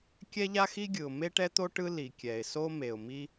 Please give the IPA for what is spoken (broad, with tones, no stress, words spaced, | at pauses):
kʲɛ˥ʎa˥xi˥ɡʲɯ˩ʊ̯ me˥ʈɛ˥t̪o˥ ʈɯ˥ li˩kʲɛ˩ɪ̯ so˥me˩ʊ̯mi˥